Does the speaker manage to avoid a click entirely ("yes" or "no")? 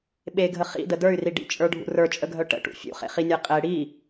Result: yes